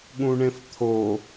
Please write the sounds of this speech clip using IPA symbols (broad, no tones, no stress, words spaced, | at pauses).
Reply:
ɠũɳẽft̪ʰo